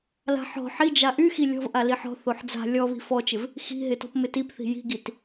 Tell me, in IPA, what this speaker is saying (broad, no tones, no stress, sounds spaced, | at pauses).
l a̤ ħ ɔ̤ ħ i d͡ʒ a ʔ y x i lʲ ɔ̤ v ʔ a l i ħ ɔ̤ θ o ħ d͡z a̤ lʲ ɔ β i̤ f ɔ t͡ʃ ɪ v | x i̤ ɦ ɪ t ɔ̤ p m ɪ t i p θ i̤ j i̤ ɡ i t